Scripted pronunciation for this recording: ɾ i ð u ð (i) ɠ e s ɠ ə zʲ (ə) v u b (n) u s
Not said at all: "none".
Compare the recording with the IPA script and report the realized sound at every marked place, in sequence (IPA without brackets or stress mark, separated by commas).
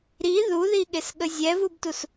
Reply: i, ɛ, t